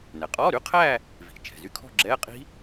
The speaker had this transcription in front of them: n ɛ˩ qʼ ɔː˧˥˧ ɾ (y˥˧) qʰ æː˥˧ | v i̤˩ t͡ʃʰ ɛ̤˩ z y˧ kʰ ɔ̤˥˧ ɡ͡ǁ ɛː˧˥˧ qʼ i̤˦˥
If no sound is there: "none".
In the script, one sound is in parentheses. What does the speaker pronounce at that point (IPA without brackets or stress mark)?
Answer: y˧˥˧